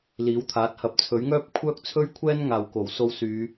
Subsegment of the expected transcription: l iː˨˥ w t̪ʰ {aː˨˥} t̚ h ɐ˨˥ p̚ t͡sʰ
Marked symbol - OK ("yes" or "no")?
yes